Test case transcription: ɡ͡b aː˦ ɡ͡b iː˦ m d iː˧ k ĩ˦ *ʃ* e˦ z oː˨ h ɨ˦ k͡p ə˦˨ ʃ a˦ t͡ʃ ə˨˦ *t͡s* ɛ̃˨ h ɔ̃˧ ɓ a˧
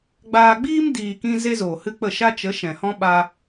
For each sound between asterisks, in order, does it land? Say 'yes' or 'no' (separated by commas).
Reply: no, no